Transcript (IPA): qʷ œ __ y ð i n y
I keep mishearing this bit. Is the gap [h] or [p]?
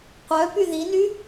p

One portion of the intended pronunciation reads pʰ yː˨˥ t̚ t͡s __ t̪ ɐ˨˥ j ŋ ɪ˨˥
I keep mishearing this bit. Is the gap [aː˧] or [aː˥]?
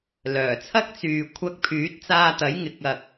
aː˧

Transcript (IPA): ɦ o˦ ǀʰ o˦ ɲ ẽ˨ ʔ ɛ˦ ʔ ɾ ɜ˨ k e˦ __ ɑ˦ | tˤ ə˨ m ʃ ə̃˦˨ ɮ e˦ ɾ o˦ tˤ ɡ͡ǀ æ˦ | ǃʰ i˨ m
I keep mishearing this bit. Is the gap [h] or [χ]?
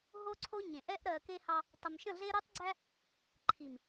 h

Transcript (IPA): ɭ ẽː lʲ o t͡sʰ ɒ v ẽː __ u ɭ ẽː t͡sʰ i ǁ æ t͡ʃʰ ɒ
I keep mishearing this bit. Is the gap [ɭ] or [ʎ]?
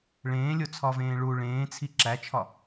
ɭ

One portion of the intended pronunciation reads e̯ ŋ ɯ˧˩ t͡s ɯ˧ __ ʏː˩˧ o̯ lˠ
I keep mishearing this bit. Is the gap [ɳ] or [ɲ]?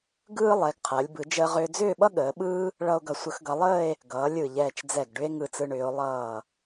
ɳ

